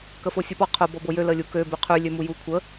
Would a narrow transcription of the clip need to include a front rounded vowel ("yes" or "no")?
yes